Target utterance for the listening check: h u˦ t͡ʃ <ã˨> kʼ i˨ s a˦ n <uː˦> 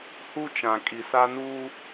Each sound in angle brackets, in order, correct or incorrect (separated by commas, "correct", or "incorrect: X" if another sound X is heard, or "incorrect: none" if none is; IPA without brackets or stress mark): correct, correct